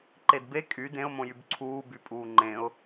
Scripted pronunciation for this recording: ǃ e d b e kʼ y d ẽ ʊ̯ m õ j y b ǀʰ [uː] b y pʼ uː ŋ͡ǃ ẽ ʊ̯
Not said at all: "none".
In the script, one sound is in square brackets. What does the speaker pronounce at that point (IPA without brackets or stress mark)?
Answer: uː